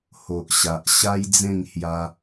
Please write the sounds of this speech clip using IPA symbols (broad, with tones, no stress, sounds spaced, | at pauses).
h o˨ ʔ ɕ a˨ ʔ ɕ a˦ j d͡z ẽ˥˧ ŋ h j a˧